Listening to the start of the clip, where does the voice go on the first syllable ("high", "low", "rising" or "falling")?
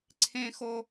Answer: high